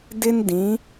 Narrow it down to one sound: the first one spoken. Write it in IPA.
d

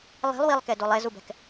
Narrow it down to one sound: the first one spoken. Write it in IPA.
lˠ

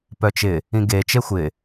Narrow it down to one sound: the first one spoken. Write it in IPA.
p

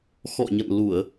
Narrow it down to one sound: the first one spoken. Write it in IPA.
x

